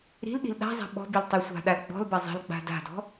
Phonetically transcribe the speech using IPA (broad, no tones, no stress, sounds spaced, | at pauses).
ɾ i̤ l ɗ i̤ l ɗ a̤ zˤ æ̤ ɓ ɔ̤ b i l tˤ i sʷ a̤ ɗ a l ɡ͡b ɔ̤ l b a zˤ i̤ l ɡ͡b a̤ d a̤ d ɔ̤